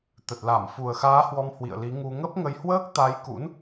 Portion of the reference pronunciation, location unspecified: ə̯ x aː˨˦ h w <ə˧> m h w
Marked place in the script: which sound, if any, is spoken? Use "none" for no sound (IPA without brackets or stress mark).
ɔ˧